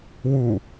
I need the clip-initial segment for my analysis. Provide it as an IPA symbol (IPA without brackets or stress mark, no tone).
w